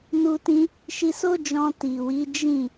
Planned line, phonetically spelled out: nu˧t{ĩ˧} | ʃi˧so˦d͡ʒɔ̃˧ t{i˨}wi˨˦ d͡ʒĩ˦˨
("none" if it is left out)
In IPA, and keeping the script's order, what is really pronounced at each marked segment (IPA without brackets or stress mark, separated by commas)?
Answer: ĩ˧, i˨